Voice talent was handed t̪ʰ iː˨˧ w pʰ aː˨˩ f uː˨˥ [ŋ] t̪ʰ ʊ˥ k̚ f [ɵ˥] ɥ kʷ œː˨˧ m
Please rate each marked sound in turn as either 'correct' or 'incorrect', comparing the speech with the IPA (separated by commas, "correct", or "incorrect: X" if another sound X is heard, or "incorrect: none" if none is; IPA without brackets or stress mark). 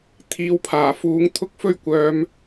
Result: correct, correct